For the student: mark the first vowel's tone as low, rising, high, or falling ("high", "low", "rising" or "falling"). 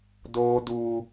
low